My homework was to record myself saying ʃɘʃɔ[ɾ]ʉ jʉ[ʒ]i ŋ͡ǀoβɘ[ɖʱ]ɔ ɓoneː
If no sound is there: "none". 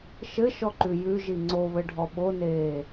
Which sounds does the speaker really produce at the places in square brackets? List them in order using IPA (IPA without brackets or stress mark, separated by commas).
ǃ, ʒ, ɖʱ